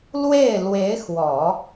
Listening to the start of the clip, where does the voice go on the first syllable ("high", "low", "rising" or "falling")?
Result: falling